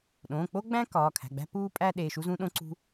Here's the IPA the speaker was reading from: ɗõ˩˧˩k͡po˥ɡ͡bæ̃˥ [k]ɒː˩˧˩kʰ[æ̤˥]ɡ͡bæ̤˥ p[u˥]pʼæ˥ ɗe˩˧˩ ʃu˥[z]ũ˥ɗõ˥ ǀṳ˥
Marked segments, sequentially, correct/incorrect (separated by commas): correct, incorrect, incorrect, correct